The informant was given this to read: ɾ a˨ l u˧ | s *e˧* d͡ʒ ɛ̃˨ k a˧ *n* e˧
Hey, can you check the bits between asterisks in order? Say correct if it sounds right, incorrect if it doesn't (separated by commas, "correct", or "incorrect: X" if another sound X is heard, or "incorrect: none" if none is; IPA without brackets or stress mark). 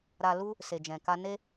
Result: incorrect: e˨, correct